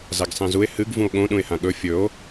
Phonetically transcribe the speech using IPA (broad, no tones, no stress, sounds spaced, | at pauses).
z a ɡ sˤ ẽ z u e̯ h ɨ ɡ v ũ o̯ ɠ õ ɗ ũ e̯ h ã ɠ ɵ fʲ ɵ o̯